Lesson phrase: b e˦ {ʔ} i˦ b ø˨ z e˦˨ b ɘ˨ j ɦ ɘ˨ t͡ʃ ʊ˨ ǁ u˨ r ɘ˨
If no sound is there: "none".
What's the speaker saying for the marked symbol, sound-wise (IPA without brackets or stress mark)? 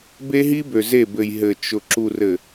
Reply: ɦ